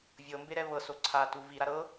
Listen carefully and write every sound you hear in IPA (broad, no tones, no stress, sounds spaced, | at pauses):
vʲ ɤ m b e ɾ ɛ β ɤ s o ǀʰ a t u v i ɾ a ɾ ɤ